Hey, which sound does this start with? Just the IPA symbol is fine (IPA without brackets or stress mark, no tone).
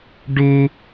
ɖ